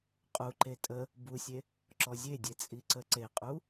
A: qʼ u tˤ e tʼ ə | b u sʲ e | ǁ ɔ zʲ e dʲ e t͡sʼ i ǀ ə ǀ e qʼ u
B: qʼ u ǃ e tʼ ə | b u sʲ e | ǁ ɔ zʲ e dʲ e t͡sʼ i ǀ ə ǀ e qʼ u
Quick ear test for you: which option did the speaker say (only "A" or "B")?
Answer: B